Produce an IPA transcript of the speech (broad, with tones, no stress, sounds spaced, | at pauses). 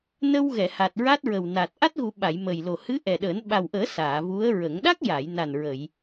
n ə˧ w ɣ ɛ˨˩˨ h a˨˩ t̚ ɹ a˦˥ t̚ ɹ ə˨˩ w n a˨˩ t̚ ʔ a˦˥ t̚ ɣ u˨˩˦ ɓ a˨˩˨ j m ə˨˩ j l o˨˩ h ɨ˧˥ ʔ ɛ˨˩ ɗ əː˨˩˦ n ɓ a˨˩ w ʔ əː˨˩˦ s aː˨˩˨ v u˧˥ ə̯ ɹ ə˨˩˦ ŋ ɗ a˦˥ k̚ j a˨˩˨ j n a˨˩ n ɹ ə˨˩˨ j